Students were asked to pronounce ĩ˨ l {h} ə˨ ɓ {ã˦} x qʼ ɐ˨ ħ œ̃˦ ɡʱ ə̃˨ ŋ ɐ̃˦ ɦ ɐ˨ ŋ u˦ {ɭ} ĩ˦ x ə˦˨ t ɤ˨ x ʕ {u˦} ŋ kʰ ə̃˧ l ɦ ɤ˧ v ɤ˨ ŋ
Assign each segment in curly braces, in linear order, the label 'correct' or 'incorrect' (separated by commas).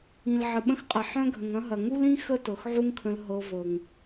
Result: incorrect, incorrect, incorrect, correct